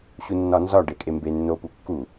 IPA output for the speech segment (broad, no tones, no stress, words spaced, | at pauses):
ɕunːɒnzɒ ɖekʼembe nːopukːu